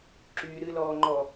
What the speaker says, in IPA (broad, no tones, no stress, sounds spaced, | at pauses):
ǁ yː ɾ ɨ l ɔː ŋ͡ǃ ɔ